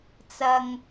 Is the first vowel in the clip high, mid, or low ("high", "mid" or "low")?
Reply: low